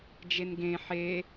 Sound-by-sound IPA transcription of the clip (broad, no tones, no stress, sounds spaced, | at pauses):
d͡ʒ e n ɡ ẽ ħ e